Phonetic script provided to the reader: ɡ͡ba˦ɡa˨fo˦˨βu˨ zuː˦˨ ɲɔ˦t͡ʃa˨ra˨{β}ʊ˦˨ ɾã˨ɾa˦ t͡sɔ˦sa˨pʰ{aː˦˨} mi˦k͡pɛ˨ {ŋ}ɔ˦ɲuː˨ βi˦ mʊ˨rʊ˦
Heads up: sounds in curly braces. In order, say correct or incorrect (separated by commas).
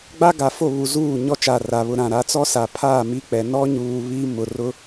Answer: correct, correct, incorrect